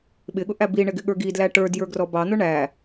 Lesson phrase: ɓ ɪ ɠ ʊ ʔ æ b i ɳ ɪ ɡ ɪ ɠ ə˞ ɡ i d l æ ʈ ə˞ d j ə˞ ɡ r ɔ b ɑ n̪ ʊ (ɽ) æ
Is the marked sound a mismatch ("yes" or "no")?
yes